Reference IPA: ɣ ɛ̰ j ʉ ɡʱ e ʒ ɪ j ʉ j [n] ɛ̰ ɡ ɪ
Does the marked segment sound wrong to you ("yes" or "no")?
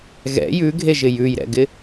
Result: yes